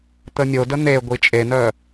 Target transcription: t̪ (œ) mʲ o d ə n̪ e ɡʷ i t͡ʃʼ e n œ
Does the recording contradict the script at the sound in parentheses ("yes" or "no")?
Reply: yes